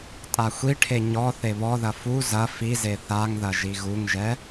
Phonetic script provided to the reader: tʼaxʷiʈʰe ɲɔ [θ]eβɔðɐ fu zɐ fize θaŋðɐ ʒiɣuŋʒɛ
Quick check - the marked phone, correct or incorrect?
correct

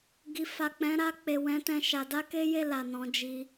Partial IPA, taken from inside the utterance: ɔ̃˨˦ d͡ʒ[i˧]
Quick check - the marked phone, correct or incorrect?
correct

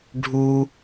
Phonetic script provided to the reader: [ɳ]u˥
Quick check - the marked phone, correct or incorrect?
incorrect: ɖʱ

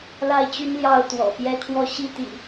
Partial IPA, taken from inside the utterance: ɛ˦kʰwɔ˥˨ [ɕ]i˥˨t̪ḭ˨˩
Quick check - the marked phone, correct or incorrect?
correct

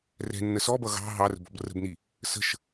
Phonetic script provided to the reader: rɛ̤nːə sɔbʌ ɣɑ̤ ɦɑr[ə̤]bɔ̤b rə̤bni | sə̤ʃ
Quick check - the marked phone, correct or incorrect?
correct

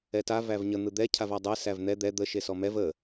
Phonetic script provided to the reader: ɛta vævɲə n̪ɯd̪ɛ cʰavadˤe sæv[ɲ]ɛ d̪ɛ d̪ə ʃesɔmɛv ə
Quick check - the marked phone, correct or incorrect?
incorrect: n̪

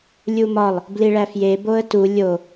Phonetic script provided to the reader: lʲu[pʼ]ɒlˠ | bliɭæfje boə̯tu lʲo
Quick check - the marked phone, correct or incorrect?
incorrect: m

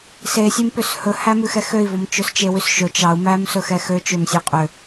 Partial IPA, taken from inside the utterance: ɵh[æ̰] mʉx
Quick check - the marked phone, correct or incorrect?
incorrect: æ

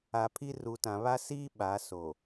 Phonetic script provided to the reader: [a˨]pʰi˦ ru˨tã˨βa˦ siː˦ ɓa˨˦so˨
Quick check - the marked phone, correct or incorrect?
correct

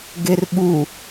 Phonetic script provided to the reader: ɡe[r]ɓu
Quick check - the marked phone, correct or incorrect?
correct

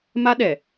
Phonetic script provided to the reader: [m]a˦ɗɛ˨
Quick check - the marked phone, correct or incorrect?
correct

